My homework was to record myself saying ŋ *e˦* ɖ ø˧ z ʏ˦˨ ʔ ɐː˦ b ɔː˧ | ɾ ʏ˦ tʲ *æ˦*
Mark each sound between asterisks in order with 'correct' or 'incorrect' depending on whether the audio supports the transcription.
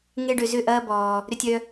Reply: correct, incorrect: œ˦

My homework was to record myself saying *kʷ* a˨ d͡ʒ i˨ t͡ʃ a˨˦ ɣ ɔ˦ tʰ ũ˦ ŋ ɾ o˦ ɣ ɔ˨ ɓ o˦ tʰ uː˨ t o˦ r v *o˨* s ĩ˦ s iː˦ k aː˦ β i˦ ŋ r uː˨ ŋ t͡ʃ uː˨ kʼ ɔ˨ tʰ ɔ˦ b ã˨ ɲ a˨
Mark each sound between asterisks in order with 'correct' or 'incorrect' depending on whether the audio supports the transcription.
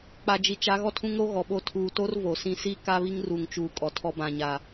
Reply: incorrect: k͡p, correct

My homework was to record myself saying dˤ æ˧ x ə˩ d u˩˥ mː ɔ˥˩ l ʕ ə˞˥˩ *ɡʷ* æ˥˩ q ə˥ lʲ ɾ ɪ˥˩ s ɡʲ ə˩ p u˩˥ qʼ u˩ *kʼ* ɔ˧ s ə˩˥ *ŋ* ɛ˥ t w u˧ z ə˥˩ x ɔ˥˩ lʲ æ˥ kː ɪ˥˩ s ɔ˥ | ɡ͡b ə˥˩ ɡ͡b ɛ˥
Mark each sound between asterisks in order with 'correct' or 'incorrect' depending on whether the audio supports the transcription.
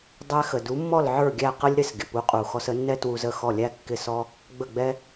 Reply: incorrect: ɡʲ, incorrect: x, incorrect: nː

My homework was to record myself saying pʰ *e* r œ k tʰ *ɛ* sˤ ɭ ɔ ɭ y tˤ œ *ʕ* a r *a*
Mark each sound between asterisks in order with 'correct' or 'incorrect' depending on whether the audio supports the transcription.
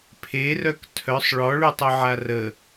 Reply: correct, incorrect: œ, correct, incorrect: ə

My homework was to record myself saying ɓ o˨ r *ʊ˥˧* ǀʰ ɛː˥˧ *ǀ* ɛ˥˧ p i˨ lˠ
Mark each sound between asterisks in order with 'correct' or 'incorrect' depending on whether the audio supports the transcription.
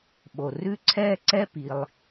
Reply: incorrect: ʉ˥˧, correct

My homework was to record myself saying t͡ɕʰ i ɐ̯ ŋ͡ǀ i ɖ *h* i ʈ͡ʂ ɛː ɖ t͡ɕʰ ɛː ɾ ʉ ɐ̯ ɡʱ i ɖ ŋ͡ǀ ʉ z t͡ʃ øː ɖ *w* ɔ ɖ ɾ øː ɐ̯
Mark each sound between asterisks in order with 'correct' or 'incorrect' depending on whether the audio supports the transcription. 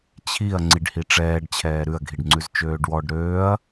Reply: correct, correct

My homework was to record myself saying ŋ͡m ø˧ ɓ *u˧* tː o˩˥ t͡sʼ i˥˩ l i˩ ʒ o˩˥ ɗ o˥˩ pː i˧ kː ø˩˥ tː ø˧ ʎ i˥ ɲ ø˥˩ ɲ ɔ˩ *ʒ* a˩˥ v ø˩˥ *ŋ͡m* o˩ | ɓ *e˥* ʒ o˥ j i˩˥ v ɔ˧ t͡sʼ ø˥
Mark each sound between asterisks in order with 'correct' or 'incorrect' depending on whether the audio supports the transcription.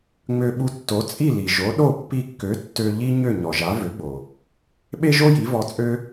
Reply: correct, correct, incorrect: ɡ͡b, correct

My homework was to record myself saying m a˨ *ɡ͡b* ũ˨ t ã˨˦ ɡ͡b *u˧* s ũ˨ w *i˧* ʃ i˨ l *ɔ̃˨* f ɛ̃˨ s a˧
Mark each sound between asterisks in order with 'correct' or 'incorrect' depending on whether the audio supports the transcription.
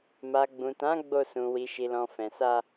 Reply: correct, incorrect: o˧, incorrect: i˨, correct

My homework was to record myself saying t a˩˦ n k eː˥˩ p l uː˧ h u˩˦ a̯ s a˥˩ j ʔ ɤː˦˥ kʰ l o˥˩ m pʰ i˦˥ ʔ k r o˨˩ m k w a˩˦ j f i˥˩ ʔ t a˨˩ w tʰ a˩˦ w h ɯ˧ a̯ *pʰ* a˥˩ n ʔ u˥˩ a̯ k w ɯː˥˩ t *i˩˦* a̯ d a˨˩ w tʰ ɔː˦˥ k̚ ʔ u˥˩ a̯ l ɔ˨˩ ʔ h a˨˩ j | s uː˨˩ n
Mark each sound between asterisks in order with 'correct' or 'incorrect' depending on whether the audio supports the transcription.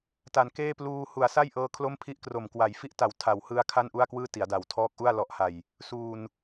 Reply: incorrect: kʰ, correct

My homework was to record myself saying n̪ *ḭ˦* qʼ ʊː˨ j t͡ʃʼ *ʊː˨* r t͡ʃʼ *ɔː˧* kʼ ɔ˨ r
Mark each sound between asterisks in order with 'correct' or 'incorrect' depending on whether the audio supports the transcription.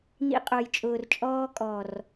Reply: incorrect: ḭ˧, correct, correct

